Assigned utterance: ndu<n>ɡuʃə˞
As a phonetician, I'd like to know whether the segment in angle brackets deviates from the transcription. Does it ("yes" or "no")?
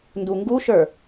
yes